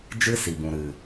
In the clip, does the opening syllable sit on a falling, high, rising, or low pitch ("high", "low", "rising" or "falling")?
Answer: high